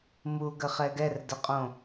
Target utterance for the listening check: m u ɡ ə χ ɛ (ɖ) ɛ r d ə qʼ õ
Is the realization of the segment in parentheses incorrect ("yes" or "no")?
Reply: yes